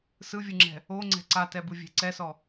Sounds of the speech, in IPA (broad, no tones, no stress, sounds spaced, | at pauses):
s ɯ vʲ ɯ ŋ͡ǁ ɛ̤ | o ŋ͡ǀ ɛ̤ ǀ a t ɛ b ɯ vʲ ɛ̤ ǀ ɛ s ɔ